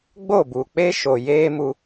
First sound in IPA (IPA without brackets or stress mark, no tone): ɡ͡b